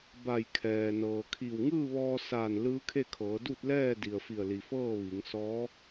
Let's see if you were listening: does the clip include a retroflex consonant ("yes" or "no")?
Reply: no